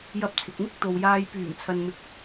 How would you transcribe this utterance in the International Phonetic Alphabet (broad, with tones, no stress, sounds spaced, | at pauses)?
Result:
j ɐ˧ p̚ t͡sʰ ɪ˨ k̚ m ɪ˥ k̚ t̪ o˨ w j aː˧ j p yː˨˩ m t͡sʰ ɐ˨ n m ɪ˨˥ k̚